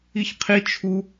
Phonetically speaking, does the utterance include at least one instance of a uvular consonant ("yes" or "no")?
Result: yes